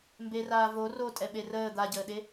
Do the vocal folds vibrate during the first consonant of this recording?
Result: yes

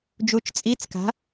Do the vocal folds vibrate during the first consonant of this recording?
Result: yes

